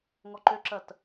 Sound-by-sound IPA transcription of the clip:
ŋ ɔ ǃ ø ǁ ɜ t

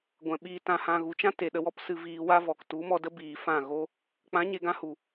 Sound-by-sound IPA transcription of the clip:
ɡʷ ɛ̃˨ ɓ iː˧ t ã˧ h ã˧ ɣ u˨ t͡ʃ ã˦ t e˨ ɗ ə˧ w ɔ˦ p s ɨ˧ v iː˧ w a˦ v ɔ˨ k t u˨˦ m ɔ˧ d ə˦ b iː˧ f ã˦˨ ɣ o˦ | k͡p ã˨˦ ɲ e˨ ɡ ã˧ h u˨

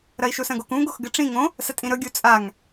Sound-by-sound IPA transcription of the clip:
ɾ ɐ i̯ ʃ u s ɐ̃ ɡ o k ũ ɡ o x ɡ ɨ ʈ͡ʂ ĩ ŋ õ | s ɐ tʼ ĩ ɾ ɵ ɡʲ u t͡sʼ a ŋ

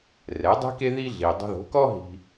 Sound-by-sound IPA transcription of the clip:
r ɛ˩˥ dˤ i̤˥ k e˥ ð i˥ ɮ i˩ dˤ o̤˧ ð o̤˩˥ k ɔ˥ ɦ i̤˧

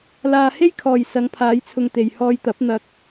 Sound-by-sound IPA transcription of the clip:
l aː˧ h e˥ j kʰ ɔː˨ j s ɐ˨˧ ŋ pʰ aː˨˧ j t͡sʰ ʊ˨ ŋ t̪ e˨ j h ɔː˧ j t̪ ɐ˨˥ p̚ n̪ ɐ˨ k̚

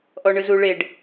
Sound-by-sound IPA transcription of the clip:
ʔ ɔ ɳ ɯ z u ɭ e ɖ

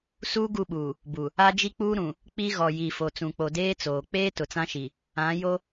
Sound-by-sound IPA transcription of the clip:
s uː˦ ɡ u˦˨ ɓ uː˨ | b u˨ | a˦ d͡ʒ i˦ k͡p uː˦ ɾ ũ˨ | k͡p i˦ ɣ ɔ˨ j i˨ f o˨ t͡s ũ˨ k͡p o˨ d eː˦ t͡s oː˨ k͡p eː˦ t ʊ˨ t͡s ã˦ ʃ i˨ | ã˨˦ j o˦

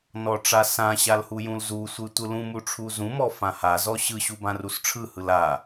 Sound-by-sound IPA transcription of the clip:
n ɔ ʈ͡ʂ a s ã ɕ a l h u j ũ l z u sʷ ɯ tʷ ɯ l ũ m u ʈ͡ʂʰ u z ũ m ɔ f ã h a z ɔ ɕ ɯ ɕ u b ã r u s ʈ͡ʂʰ ɯ h ɯ l a

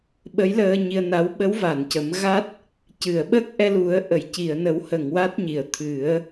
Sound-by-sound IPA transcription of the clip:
ɓ ə˧˥ j l əː˧ ɲ i˧ ə̯ n a˧˥ w ɓ ə˧˥ w v a˨˩˨ n c ə˨˩˦ m ɣ a˦˥ t̚ | c ɨ˨˩˨ ə̯ ɓ ə˦˥ k̚ ʔ ɛ˧ l u˨˩˦ ə̯ ʔ ə˨˩˨ j c i˨˩˨ ə̯ n ə˨˩˦ w h ə˨˩˨ ŋ w a˦˥ t̚ ɲ i˨˩ ə̯ t̪ʰ ɨ˨˩˦ ə̯

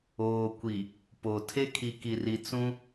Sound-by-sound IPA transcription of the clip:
oː˨ kʷ i˨ | p o˨ tʰ e˦ kʰ i˨ k i˨ r i˨ t͡s ũ˦

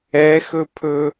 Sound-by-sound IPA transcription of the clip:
ɛ x ɵ pʰ ɵ

